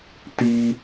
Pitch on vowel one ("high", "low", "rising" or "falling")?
high